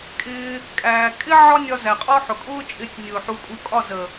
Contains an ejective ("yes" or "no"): yes